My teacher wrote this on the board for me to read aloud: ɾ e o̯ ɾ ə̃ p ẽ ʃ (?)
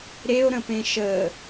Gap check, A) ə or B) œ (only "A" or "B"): A